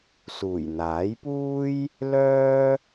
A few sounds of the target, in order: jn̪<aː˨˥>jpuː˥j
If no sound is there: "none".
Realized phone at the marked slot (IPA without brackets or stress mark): aː˨˥